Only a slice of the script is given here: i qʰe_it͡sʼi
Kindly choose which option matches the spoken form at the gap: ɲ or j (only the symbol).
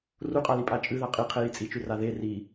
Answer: j